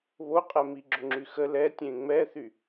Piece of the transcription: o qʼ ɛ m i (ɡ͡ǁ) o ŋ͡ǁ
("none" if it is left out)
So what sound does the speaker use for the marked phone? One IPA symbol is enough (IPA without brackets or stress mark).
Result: ɡ͡ǁ